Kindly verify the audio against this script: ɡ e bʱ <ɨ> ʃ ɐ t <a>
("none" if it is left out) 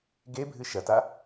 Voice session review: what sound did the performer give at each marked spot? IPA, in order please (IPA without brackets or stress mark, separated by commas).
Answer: ɨ, a